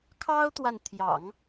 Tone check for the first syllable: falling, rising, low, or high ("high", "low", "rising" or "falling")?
high